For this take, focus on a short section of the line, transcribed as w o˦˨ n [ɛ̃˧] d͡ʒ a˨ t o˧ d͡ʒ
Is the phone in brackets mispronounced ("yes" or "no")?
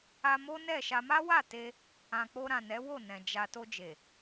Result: yes